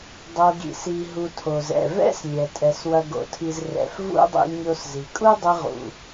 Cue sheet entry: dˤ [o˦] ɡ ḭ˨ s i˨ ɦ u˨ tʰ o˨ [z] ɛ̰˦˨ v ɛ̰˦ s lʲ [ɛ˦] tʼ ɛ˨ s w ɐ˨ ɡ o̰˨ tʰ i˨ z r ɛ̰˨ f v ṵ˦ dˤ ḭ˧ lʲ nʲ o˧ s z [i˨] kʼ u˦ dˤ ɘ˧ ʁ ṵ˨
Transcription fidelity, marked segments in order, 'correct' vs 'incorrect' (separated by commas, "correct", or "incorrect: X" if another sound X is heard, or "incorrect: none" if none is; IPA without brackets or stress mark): incorrect: o˧, correct, incorrect: ɛ˨, correct